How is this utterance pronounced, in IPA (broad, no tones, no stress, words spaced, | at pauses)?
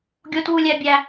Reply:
ɡʲotwulʲæbʲæ